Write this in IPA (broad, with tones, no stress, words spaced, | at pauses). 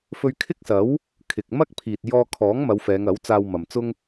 fɵ˧ɥkʰɪ˥k̚sɐ˨˥w | kʰɪ˨k̚ mɐ˥k̚pʰiː˨t̚ jɔː˧kʰɔː˨˥ŋmɐ˨˧w fɛː˨˧ŋɐ˨˥wt͡saː˧wmɐ˨m t͡sʊ˥ŋ